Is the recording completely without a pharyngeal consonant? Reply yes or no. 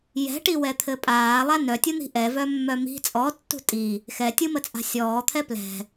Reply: yes